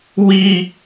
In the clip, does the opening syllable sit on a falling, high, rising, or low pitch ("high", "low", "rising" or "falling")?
high